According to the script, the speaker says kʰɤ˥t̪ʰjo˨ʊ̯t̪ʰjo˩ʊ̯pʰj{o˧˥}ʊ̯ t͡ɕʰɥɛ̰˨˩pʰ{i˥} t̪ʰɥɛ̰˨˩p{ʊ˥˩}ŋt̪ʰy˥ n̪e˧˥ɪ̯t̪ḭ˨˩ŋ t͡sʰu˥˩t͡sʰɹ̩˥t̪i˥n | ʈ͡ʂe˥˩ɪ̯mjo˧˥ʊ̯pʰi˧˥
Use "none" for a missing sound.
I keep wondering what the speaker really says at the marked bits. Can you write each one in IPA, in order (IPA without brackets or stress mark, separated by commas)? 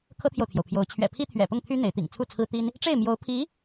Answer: o˧˥, i˥, ʊ˥˩